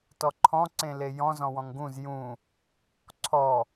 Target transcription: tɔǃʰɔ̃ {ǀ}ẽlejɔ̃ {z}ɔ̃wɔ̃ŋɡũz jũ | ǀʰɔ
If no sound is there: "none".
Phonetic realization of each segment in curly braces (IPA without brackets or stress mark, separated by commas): ǀ, z